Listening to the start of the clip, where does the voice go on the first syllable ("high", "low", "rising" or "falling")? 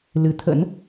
rising